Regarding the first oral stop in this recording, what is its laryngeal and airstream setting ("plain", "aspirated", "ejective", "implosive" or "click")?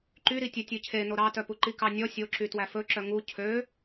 click